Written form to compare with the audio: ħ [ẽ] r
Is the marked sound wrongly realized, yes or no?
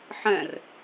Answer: yes